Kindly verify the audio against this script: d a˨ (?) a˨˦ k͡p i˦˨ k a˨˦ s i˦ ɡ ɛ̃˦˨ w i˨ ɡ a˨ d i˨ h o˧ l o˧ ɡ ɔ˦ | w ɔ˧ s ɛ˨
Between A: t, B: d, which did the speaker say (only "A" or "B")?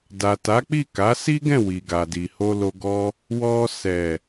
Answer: A